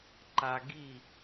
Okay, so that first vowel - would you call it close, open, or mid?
open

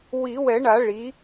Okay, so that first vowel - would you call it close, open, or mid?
close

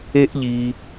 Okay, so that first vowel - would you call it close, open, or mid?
mid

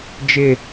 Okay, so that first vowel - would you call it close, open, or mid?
close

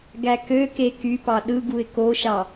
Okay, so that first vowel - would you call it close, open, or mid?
open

